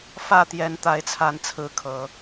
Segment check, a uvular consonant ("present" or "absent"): absent